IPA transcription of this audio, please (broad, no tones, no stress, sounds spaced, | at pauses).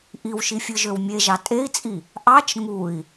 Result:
ʔ i w ʃ i fʲ ɯ ʒ ø w mʲ e ʒ ɑ tʼ e i̯ t͡sʼ i | ʔ ɑ t͡ʃ ŋ u i̯